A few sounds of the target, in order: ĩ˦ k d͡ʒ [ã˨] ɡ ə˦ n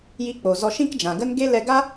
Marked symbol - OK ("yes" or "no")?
yes